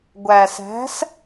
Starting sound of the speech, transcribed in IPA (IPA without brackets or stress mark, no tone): ɡʷ